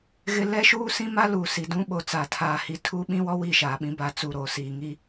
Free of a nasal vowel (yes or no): no